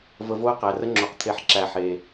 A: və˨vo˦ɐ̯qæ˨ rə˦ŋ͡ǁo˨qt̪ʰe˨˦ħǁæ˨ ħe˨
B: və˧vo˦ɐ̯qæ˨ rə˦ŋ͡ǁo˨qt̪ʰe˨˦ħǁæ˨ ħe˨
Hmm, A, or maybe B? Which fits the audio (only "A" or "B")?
B